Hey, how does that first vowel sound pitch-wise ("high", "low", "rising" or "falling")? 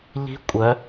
rising